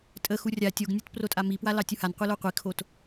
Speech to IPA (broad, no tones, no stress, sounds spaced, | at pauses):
tʼ ə x u rʲ a tʲ o ɡ nʲ u t p r o tʼ a m i p w a l ɑ tʲ u h a n qʷ ɛ l o qʷ i kʰ o t